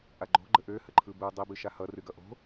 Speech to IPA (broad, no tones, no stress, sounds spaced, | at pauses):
ʔ a ɡ͡ǃ o̤ ɡ͡ǃ ə ʔ ø h ə ǃʰ ɯ b ɯ dˤ i b ɨ ʃ a h ʌ r ɨ ɡ ʌ ʔ o̤